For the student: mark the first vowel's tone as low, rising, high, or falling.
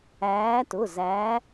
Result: rising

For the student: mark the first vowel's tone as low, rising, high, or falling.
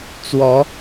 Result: rising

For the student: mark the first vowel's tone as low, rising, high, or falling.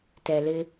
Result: low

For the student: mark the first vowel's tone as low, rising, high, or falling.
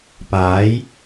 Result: rising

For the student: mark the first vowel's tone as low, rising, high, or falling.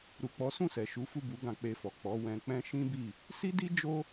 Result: low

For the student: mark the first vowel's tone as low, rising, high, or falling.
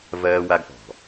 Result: high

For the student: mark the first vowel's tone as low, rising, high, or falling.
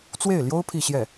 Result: falling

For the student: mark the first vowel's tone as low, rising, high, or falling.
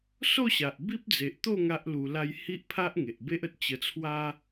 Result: falling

